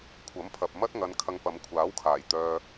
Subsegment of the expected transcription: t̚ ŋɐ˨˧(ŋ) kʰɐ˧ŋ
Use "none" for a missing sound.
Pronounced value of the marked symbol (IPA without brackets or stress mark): n